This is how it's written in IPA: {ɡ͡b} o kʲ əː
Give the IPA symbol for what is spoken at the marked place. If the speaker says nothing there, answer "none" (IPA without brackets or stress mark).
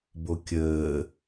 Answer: b